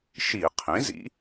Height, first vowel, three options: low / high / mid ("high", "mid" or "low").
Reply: high